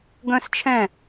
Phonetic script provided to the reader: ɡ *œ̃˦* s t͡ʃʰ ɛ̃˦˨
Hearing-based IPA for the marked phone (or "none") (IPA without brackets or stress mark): œ̃˦